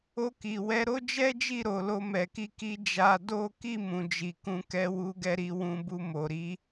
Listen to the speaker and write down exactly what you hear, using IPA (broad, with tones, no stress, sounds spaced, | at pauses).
o˧ k i˨ w ɛ˨˦ ɾ o˦ d͡ʒ ɛ˦ d͡ʒ i˦˨ ɾ o˨ l o˧ m ɛ˨ k i˧ k i˧ d͡ʒ a˧ d o˦ k i˦˨ m ũ˨ d͡ʒ i˨ k ũ˧ k ɛ˧ w u˧ ɡ ɛ˧ ɾ i˧ w ũ˧ b u˧ m o˨ ɾ i˨˦